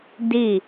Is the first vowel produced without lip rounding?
yes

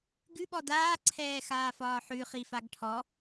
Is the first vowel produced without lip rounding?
no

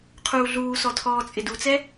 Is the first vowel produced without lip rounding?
no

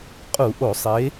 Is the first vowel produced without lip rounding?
no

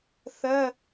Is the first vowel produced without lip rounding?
yes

